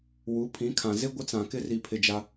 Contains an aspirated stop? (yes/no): yes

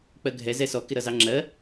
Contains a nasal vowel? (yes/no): no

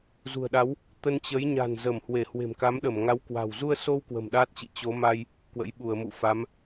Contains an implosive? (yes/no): yes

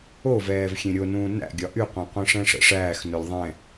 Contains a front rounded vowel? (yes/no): yes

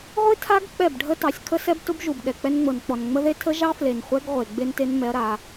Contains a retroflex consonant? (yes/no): yes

